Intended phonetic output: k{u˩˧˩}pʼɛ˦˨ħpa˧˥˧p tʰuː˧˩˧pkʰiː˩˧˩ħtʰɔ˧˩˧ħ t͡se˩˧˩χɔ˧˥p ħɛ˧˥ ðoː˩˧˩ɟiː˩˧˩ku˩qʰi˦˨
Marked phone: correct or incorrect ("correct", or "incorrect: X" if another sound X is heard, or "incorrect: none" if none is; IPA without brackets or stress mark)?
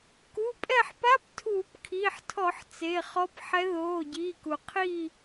correct